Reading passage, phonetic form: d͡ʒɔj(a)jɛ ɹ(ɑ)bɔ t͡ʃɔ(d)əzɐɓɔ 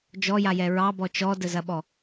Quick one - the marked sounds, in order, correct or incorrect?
correct, correct, correct

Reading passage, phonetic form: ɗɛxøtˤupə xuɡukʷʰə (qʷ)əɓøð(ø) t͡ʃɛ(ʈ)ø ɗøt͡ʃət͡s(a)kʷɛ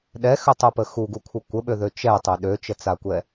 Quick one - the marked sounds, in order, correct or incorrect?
incorrect, correct, incorrect, correct

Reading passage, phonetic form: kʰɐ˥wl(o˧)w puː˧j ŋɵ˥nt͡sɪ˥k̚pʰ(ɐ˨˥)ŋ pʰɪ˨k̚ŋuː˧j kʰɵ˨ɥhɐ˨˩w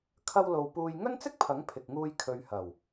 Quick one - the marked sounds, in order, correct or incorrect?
correct, correct

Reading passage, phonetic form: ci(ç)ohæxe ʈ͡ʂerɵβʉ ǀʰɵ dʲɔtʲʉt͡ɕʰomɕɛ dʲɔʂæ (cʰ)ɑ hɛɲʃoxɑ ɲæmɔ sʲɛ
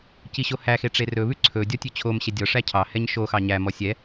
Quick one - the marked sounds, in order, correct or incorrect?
incorrect, correct

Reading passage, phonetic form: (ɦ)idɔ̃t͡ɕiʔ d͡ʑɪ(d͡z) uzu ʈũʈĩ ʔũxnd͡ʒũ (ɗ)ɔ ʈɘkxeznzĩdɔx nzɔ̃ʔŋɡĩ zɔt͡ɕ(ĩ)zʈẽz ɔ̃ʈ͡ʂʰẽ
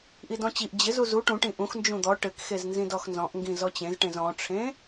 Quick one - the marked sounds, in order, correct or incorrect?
incorrect, incorrect, incorrect, incorrect

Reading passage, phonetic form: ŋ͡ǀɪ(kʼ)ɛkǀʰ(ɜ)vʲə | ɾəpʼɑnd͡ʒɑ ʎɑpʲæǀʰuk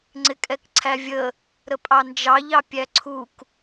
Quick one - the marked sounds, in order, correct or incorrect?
correct, incorrect

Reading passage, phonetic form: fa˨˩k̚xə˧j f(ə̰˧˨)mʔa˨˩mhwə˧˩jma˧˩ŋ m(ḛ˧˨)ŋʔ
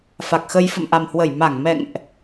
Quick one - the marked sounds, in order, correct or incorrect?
correct, incorrect

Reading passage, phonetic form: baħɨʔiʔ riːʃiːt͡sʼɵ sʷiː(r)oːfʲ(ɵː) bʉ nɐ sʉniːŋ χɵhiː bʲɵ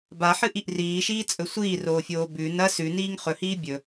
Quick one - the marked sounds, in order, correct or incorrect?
correct, incorrect

